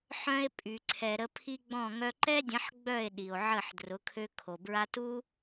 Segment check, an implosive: present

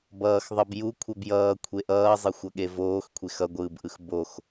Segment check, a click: absent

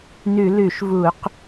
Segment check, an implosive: absent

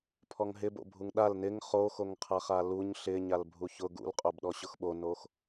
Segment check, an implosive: present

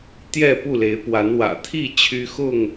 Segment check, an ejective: absent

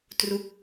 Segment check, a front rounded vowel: absent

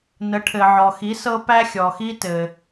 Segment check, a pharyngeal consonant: present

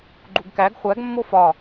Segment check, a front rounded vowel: absent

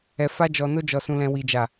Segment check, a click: absent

